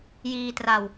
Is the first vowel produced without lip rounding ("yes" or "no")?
yes